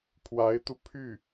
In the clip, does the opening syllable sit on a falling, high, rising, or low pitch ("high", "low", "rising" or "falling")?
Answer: rising